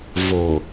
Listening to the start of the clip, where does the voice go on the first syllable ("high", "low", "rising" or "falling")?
low